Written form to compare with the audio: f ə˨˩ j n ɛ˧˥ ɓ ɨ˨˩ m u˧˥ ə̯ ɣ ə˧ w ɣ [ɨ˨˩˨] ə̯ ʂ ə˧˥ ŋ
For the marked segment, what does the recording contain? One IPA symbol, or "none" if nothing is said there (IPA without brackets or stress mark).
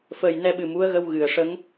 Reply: ɨ˨˩˨